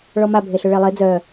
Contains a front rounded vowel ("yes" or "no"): yes